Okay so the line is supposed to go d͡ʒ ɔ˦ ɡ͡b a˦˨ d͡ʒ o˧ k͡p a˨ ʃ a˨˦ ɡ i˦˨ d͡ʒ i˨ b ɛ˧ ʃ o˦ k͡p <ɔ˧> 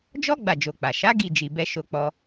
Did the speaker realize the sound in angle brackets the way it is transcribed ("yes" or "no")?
no